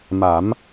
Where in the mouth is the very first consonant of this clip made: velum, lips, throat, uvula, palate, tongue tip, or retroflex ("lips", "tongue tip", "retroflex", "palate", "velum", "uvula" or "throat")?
lips